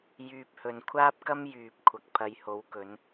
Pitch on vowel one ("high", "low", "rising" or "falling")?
low